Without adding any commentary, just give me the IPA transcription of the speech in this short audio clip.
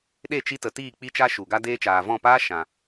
ɗ e˦˨ t͡ʃ i˧ t ə˨ t iː˦˨ k͡p i˦ t͡ʃ a˦ ʃ u˨ ɡ a˦ d eː˧ t͡ʃ aː˨ v ɔ̃˦˨ p aː˦ ʃ ã˨

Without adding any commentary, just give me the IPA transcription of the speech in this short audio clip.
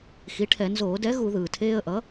x i˩˥ ʈʰ ɛ˧˩˧ n z oː˧˩˧ d ɛ˩˥ ɣ u˧˩˧ ð ɯː˩ tʰ eː˧ ə̯ ʔ ʌ˩˥

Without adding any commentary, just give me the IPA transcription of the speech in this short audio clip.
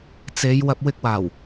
t͡s e˨˧ j w ɐ˧ p̚ w ɪ˧ k̚ w aː˨˩ w

